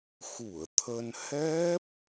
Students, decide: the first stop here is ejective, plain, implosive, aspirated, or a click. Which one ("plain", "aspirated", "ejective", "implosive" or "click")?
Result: aspirated